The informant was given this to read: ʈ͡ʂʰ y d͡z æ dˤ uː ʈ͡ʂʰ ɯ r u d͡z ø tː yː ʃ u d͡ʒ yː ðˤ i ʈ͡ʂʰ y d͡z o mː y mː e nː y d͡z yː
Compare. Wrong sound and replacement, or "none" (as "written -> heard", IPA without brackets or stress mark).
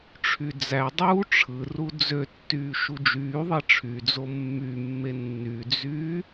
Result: none